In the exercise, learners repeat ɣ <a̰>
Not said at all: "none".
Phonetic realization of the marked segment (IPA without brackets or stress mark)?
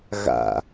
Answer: a̰